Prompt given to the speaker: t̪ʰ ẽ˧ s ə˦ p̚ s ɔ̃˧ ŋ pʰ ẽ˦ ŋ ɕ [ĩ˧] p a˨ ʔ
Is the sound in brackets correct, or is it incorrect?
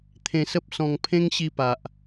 incorrect